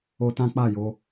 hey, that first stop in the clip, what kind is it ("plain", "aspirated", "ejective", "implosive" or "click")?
plain